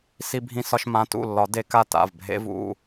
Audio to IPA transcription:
s i˧ bʱ ĩ˧ s ɒ˧ ʃ m ã˩˧˩ t ṵ˥˩ lː ɒ˨˩˦ d e˧ k a˥˩ t a̰˩˧˩ v bʱ ḛ˧ v ṵ˩˧˩

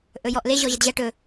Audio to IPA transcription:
ʔ ɵ j ɔ ʔ l e ʑ ɔ ʑ ə d ʑ ɐ ʈ ɵ

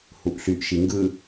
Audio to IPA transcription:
h u ʔ ɬ y ʔ ʃ i ŋ ɡ ɯ

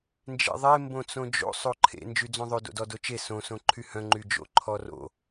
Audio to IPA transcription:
n d͡ʒ ḛ ðˤ e m b õ t͡s õ d͡ʒ o̰ sˤ o ǃʰ ḛ n d͡ʒ y d͡z õ ðˤ ø d o̰ d ɔ d o t͡ʃ e s õ s õ ǃʰ y h œ̃ ŋ͡ǃ y d͡ʒ o̰ ǃʰ ɔ r o̰

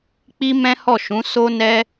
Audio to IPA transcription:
k͡p i˦ m ɛ̃˦ h ɔ˦˨ ʃ ũ˨˦ s o˦ n ɛ˦

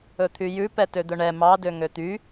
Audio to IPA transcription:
ɵ t̪ʰ y j ʉ p ɛ t ø d̪ ɵ ɳ ɛ m ɑ d ø ŋ ø t̪ y

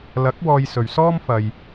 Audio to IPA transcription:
l ɐ˨˥ k̚ w ɔː˧ j s ɵ˨ ɥ s ɔː˥ m f ɐ˨ j

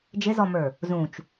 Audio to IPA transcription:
d͡ʒ ɪ z ɔ m ə˞ | z ũ t͡ʃ

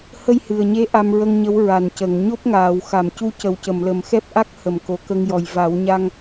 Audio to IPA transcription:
h ə˧ j h ɨ˨˩ ə̯ ɲ e˧˥ ʔ a˧ m ɹ ə˧ ŋ ɲ ə˧˥ w ɹ a˨˩ n c ə˨˩˨ ŋ ɲ o˦˥ p̚ ŋ aː˨˩˨ w x a˨˩˨ m c u˧˥ c ə˨˩ w c ə˨˩˨ m l ə˨˩ m x ɛ˦˥ p̚ ʔ a˦˥ k̚ h ə˨˩˨ m k o˨˩ k ə˧ ŋ j ɔ˨˩ j v a˨˩˦ w ɲ a˧ ŋ

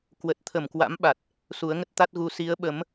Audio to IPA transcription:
k w ə˨˩ t̚ t̪ʰ ə˧˩ m k w a̰˧˥ m ɓ a˨˩ t̚ | s u˨˦ ə̯ ŋ ə˦˥ t̚ t̪ a˦˥ t̚ ɣ u˧ s i˨˦ ə̯ ɓ ə˨˦ m

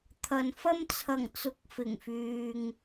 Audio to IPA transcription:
t̪ʰ ɐ˨ n f ɐ˥ m t͡sʰ ɐ˨˩ ŋ t͡s ʊ˨˥ k̚ f ɪ˨˩ ŋ f yː˨ ŋ

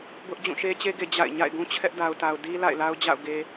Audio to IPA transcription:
b ʊ˦ ʔ d͡ʑ ũ˦˨ ʃ e˦ t͡ɕ e˦ ɡ e˨ d͡ʑ a̰˦˨ ɪ̯ ɲ a̰˦˨ ɪ̯ ɡ ũ˦ t͡ɕʰ ɛ˦ ʔ d a˨ ʊ̯ t a˨ ʊ̯ d i˦ l a̰˦˨ ɪ̯ l a˦ ʊ̯ d͡ʑ a̰˦˨ ʊ̯ ɡ e˨

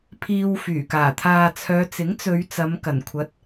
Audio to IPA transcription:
pʰ iː˧ w f yː˨˩ k aː˨˩ t̪ʰ aː˨ t͡sʰ œː˨˧ t͡s ɪ˨˥ ŋ t͡s ɵ˨˧ ɥ t͡s ɐ˨˧ m k ɐ˨˩ n kʷʰ ɐ˨˥ t̚

